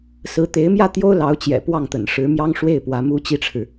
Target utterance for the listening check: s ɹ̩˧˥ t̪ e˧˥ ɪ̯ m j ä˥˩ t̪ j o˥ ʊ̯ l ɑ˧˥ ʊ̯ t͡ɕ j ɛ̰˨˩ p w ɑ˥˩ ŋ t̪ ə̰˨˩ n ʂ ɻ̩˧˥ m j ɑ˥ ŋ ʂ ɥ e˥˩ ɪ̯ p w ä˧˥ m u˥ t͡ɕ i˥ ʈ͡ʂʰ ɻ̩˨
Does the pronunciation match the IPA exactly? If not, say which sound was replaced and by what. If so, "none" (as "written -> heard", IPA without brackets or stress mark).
ɥ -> w